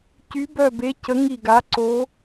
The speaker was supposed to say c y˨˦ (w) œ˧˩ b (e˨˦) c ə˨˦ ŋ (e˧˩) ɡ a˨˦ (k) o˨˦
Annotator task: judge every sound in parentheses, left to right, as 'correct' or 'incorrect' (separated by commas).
incorrect, correct, incorrect, incorrect